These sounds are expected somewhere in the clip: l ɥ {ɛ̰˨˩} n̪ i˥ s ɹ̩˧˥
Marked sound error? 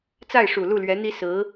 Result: yes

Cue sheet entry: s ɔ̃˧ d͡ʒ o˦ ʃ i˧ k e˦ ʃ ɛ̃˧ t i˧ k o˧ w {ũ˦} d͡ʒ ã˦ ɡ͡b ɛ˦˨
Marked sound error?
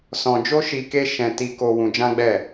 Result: yes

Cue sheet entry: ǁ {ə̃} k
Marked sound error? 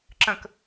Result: no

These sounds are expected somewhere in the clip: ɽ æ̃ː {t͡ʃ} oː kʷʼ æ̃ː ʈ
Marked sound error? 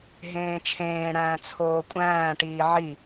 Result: yes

